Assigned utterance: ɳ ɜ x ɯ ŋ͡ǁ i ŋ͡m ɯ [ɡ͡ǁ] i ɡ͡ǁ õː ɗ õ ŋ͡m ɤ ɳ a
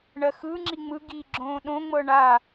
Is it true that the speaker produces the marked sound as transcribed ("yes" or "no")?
no